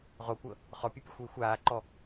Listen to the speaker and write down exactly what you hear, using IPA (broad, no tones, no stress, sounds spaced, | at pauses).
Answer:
ʁ o kʷ ɤ | χ ɔ pʲ ɯ pʲ ɛ xʷ w i xʷ aː ǃ ɔ